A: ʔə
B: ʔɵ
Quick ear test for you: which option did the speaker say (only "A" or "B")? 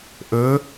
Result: B